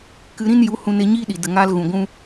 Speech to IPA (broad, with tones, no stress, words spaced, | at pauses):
kɨ˧ɾĩ˦n ju˨˦hũ˧ne˧ ɲiː˦ɗi˨də˨ŋaː˧l ɣũ˨ɡʷũ˦